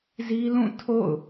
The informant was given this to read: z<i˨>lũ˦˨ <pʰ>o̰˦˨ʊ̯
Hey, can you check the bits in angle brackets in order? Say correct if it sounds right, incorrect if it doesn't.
incorrect: i˦, incorrect: tʰ

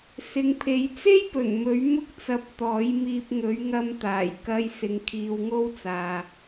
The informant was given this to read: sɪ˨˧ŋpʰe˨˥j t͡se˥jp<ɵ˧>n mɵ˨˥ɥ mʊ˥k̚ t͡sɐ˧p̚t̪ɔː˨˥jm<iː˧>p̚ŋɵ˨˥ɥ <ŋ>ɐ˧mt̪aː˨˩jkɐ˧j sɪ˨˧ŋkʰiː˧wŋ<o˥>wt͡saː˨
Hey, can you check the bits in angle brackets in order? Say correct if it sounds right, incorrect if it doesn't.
incorrect: ɵ˨˩, correct, correct, correct

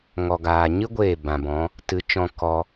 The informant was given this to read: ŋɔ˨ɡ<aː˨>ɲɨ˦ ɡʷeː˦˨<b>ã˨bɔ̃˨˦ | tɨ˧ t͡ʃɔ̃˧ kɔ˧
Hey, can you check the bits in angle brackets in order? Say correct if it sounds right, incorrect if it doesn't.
correct, correct

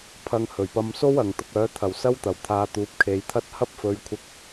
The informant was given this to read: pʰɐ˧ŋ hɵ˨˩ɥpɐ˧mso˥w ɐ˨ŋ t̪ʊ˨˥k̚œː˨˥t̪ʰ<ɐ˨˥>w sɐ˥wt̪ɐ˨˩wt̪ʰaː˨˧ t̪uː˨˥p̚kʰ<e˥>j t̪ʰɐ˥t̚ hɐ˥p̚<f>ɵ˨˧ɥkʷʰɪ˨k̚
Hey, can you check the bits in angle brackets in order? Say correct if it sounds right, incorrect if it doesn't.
incorrect: ɐ˨˩, incorrect: e˨, correct

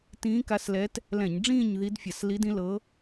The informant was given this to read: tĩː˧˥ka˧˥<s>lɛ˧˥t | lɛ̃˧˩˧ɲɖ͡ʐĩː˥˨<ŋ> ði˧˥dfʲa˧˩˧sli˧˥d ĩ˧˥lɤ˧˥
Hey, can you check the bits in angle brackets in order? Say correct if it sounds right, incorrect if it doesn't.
correct, incorrect: ɲ

